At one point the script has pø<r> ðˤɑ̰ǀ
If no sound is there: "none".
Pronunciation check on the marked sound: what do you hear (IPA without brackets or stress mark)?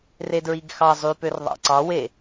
r